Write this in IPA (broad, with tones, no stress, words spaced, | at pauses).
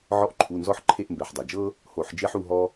ʕɔ˦ʔ ǃʰu˩˧˩nzɔ˦˨ħ ǃʰe˦˨ʔmbɛ˩˧˩ħdˤɛ˩d͡ʒɤ˦ | ho˧˩˧ħd͡ʒe˦ħu˦˨ɦɔ˦